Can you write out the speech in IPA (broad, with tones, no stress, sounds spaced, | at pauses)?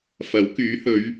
f ɐ˨˥ w k yː˨˥ h ɵ˨˧ ɥ